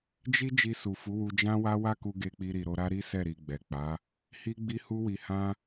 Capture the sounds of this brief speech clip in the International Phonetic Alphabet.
d͡ʒ i˦ d͡ʒ i˧ s u˨ f u˨˦ w u˧ d͡ʒ ã˦ w a˦ w a˦ k u˧ ɡ e˧ k͡p i˧ ɾ i˨ ɾ o˧ ɾ a˦ ɾ i˦ s ɛ˦˨ ɾ i˨ ɡ͡b ɛ˨ k͡p a˨˦ | h i˦ ɡ͡b i˦ h u˦ w i˧ h ã˦

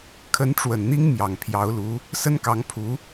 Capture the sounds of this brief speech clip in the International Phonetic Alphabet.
kʰ ə˧˥ n ʈ͡ʂ w ə˨˩ n n̪ i˥ ŋ m j ɑ˨˩ ŋ pʰ j ɑ˧˥ ʊ̯ l u˧˥ | s ə˥ n k ɑ˧˥ ŋ pʰ u˧˥

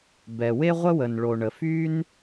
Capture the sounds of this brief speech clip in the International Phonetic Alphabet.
b ɛ˩ w e˥ ʁʷ ə˥ w ə˩ n ɭ o˩ ɳ ə˩ f y˥ n

